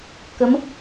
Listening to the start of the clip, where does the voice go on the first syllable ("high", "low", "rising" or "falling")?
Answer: rising